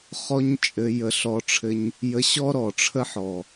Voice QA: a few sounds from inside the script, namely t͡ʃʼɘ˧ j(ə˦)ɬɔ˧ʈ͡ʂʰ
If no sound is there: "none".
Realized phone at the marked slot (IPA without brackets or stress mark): ə˧